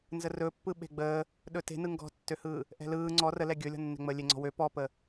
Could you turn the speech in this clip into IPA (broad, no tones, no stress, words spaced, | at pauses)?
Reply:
nzərɵpːɯ ɓe̤ɡ͡bəː | ɗɵte̤nɯ ŋɡɔ̤tːøhɯː | ʔɛ̤lɯː ŋ͡ǀɔ rəlɛ ɡʲɵlʲɔ̤nːɛ̤ŋ͡məː lʲeŋ͡ǀɔ̤wø pɔpə